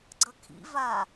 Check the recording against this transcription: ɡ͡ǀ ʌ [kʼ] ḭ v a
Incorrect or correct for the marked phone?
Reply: incorrect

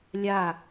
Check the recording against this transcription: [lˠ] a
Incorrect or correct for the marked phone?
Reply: incorrect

